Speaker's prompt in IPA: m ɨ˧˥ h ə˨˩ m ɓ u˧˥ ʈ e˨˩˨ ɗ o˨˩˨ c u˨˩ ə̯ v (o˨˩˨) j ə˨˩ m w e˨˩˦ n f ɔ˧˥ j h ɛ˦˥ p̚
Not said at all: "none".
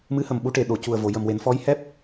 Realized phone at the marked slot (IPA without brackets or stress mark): o˨˩˨